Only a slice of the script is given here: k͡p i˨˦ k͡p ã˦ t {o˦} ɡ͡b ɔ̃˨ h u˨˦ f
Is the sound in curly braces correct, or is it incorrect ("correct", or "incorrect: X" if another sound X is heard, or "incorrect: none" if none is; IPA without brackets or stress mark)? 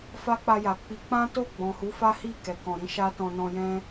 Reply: incorrect: o˦˨